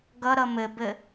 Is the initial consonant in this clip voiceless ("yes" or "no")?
no